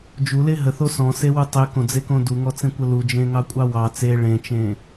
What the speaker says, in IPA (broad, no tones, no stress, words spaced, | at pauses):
d͡ʒule ɦəθo sɔ̃sewu tˤekõd͡zekõ duŋɔt͡sẽkʷə lud͡ʒẽŋɑkʷʼɑ wɑ t͡se ɭẽt͡ʃẽ